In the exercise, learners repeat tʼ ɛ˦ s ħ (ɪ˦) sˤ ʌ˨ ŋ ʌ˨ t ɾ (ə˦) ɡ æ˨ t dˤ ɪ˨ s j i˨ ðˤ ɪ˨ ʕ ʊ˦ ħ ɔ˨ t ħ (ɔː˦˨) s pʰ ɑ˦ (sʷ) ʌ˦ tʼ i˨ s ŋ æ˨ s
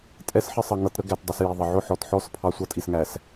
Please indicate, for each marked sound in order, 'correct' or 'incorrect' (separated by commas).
correct, correct, incorrect, correct